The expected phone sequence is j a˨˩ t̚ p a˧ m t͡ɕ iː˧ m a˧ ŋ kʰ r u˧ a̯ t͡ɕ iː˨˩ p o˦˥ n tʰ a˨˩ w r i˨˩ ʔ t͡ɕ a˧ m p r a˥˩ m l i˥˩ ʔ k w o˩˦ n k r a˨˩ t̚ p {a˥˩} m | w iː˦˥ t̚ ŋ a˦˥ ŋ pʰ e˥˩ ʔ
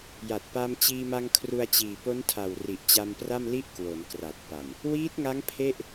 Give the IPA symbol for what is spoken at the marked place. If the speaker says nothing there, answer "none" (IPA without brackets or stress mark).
a˨˩